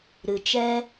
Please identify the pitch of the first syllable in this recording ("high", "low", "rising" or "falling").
low